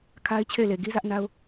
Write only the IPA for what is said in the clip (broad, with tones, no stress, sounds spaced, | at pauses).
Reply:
kʰ a˦ ɪ̯ t͡ɕʰ e˦˨ ɪ̯ l e˨ ɡ i˦ z ä˦ ʔ n a˦ ʊ̯